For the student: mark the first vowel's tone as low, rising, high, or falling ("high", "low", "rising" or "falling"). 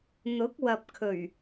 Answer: rising